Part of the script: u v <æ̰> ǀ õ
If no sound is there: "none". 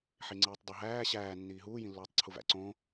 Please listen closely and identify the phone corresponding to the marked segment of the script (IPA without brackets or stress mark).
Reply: æ̰